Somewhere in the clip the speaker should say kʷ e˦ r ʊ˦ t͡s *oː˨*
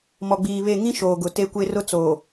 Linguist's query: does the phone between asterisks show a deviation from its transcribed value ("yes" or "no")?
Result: no